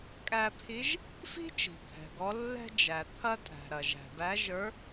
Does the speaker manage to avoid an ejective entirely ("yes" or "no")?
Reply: no